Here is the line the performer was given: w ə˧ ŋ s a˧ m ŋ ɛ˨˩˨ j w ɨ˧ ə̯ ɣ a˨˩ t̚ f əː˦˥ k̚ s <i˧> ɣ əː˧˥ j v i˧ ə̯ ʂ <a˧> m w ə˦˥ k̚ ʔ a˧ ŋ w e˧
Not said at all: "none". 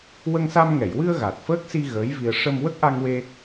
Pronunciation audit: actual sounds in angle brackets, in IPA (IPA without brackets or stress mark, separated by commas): i˧, ə˧